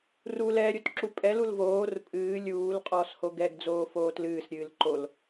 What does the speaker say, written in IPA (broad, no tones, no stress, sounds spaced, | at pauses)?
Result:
r u l ɛ ɾʲ o t ǁ u pʼ ɛ l u l v oː r pʼ ɨː lʲ uː l qʼ ɔː s h o ɡ ɛ ɡ d͡z oː f oː t l ɨː s ɾʲ ɨː l ǃ o l